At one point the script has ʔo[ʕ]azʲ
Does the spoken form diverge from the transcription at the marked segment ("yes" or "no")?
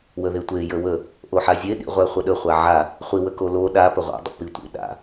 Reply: yes